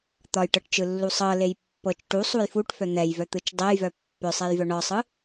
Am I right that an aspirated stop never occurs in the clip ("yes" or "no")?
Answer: yes